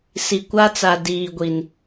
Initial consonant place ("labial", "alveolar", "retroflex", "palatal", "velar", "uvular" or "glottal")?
alveolar